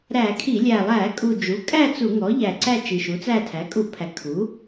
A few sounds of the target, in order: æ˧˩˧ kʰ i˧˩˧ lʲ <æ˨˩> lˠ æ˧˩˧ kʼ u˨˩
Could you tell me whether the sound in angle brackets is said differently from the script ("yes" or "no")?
no